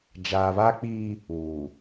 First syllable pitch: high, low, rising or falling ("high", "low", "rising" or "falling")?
low